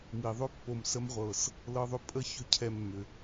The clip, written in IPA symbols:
mi˨ðˤʏ˦ pːo˨msə˧mʁʷɤ˨s | lɤ˧ðˤʏ˧ pʼə˦ çʏ˦cʰɛ˧mːʏ˨

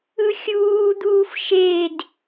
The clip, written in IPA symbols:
ɯxʲuːd̪uːf ʃed

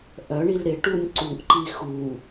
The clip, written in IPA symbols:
ʔœɳil ɾɪʈunʲ ǀuʔǃi xu

